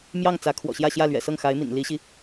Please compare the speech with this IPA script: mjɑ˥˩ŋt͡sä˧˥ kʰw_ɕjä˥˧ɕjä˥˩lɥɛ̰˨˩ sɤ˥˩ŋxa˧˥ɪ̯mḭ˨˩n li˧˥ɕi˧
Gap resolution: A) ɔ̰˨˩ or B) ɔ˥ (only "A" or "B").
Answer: A